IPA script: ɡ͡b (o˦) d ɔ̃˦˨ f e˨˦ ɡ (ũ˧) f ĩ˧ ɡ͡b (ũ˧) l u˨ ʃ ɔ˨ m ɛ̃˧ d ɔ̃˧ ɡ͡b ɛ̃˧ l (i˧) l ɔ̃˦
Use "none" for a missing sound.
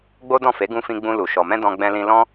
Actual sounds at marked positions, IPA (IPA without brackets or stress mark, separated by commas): o˦, ũ˧, ũ˧, ĩ˧